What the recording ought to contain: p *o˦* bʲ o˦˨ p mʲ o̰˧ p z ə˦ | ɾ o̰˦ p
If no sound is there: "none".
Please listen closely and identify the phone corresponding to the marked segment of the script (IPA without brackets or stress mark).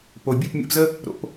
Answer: o˨